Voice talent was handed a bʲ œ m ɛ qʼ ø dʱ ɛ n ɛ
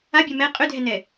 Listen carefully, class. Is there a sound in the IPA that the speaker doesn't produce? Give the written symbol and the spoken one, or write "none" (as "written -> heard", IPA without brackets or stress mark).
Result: none